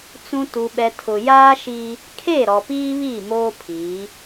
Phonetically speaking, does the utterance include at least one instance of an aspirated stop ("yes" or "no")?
yes